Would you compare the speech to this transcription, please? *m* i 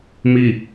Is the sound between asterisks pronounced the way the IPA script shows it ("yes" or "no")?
yes